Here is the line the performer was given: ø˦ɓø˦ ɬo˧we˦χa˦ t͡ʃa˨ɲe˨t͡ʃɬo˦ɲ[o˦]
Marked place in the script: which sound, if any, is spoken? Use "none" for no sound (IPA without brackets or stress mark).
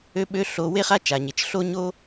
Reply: o˦